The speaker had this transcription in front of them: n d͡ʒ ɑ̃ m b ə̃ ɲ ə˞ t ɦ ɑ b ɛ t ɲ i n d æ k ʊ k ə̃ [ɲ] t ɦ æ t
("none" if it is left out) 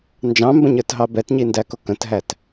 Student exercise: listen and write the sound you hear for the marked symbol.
none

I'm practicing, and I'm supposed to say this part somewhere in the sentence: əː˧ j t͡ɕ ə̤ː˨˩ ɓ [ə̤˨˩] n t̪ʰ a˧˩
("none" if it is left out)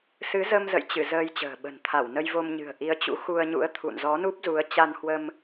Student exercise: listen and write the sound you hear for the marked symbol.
ə̤˨˩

